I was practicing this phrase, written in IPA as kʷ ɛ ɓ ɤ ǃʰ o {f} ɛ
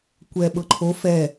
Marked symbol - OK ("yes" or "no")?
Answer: yes